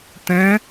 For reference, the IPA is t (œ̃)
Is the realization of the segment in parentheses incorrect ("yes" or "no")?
yes